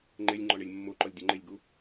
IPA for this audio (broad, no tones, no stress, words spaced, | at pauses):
ŋ͡ǃelʲ ŋ͡ǃɔɳelʲmːoǃɔlʲ dʲʊŋ͡ǃɪlʲɡu